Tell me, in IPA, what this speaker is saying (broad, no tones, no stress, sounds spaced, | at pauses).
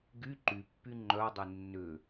ɡ y ǃ y pː y ŋ͡ǃ œ dˤ e nː ʏ